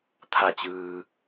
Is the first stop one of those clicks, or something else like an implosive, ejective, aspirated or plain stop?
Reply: aspirated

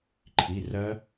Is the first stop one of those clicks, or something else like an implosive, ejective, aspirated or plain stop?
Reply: click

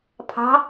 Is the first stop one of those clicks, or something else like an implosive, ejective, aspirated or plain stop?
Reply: aspirated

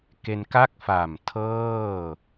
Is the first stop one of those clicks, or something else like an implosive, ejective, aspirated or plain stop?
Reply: plain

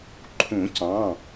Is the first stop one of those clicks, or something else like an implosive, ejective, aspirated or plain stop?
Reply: click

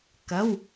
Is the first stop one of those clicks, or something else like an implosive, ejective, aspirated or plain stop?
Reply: plain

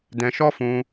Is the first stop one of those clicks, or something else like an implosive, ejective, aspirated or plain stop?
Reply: plain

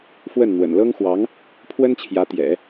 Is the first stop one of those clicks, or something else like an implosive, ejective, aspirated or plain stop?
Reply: aspirated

